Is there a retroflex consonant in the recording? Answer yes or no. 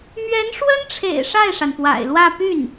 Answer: yes